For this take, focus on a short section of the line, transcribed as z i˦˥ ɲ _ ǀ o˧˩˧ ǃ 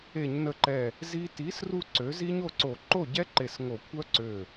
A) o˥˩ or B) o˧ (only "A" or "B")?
A